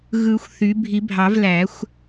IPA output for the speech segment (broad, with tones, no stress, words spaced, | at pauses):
ɣɯ˨˩˦xʷ θy˩˥ bʱi˨˩˦bʱɑ˨˩˦v læ˨˩˦xʷ